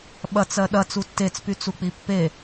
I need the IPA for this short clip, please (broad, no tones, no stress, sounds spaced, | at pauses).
ɓ ɐ t͡s ɜ ɗ ɐ t͡s u tː e t͡s p y t͡s u k͡p i pː e